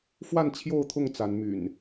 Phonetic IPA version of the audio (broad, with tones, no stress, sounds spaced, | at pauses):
f w a˥˨ n t͡ɕʰ j o˥˨ ʊ̯ t̪ʰ ʊ˥˨ ŋ t͡s a˨˦ n m y̰˨˩ n